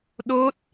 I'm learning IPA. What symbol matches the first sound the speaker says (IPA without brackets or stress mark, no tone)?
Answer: ɗ